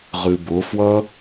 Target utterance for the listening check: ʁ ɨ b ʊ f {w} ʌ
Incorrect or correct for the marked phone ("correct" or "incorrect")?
correct